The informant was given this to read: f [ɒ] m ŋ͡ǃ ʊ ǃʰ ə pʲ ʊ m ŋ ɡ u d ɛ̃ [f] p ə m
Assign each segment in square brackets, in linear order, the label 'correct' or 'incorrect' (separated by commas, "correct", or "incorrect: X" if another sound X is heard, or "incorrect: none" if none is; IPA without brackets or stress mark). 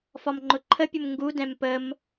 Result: correct, incorrect: m